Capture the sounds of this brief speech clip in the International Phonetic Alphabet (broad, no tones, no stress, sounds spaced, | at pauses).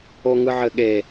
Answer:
o ŋ ɯ ʕ ɘ ɠ e